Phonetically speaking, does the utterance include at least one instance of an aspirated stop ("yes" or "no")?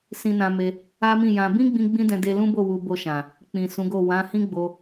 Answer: no